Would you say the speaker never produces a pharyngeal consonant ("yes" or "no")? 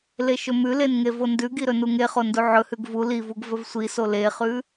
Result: no